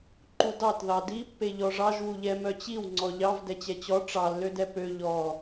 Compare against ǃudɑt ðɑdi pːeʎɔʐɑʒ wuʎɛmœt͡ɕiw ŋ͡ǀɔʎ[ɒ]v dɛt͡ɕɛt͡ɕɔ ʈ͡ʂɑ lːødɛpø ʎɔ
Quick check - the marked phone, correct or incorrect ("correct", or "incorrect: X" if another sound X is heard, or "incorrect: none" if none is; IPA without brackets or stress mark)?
incorrect: ɑ